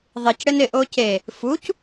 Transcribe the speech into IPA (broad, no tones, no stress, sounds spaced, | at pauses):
ðˤ i c ɽ ɪ n ɪ ʔ o c e | f u c